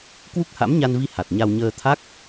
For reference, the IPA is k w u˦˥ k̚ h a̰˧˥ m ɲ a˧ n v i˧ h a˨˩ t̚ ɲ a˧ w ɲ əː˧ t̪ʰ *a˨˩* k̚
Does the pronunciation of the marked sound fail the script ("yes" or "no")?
yes